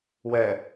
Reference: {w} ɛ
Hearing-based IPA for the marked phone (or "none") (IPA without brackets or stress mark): w